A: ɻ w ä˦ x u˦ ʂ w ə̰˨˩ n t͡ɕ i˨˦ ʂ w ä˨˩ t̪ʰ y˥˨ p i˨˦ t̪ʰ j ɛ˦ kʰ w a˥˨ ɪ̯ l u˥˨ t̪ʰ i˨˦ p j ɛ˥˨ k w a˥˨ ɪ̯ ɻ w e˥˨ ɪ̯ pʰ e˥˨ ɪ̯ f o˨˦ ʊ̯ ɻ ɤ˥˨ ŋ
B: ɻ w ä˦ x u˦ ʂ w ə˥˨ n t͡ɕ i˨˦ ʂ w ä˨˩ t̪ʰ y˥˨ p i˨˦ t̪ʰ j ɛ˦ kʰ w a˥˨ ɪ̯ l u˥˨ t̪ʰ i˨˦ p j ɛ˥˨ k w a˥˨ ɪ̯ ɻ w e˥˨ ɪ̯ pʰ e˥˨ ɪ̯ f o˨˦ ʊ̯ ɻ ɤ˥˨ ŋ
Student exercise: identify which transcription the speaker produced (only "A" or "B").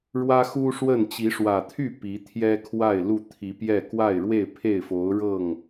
B